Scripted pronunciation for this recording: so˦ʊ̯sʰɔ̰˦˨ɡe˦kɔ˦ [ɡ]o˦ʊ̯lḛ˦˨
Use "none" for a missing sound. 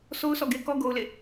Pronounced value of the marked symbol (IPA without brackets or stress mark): ɡ